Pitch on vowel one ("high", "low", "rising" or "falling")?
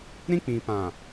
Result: high